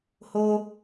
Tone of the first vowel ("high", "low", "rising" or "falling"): high